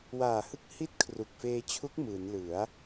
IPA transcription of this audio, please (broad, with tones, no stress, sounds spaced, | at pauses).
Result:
w aː˨˩ h ɯ˦˥ k̚ h i˦˥ t̚ kʰ r u˨˩ k̚ f eː˧ t͡ɕʰ u˦˥ k̚ m ɯː˩˦ n l ɯ˩˦ a̯